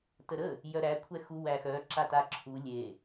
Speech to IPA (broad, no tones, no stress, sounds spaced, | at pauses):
t ə ɾ ə | j œ ɾ æ kʷʰ ɛ x u w æ x œ ǁ a t a ǁʰ u lʲ e